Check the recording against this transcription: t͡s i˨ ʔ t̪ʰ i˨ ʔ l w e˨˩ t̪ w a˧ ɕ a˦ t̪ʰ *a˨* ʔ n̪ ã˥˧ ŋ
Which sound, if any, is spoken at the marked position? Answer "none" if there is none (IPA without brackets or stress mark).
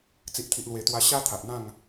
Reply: a˨